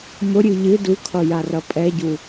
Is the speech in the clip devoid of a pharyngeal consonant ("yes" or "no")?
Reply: yes